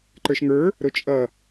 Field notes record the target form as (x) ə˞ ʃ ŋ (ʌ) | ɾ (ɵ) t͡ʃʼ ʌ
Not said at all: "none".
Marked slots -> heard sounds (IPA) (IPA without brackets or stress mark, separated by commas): ǃ, ə˞, ʊ